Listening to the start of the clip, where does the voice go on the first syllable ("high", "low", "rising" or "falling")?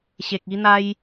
low